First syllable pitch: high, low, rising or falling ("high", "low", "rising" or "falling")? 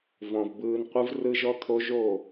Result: low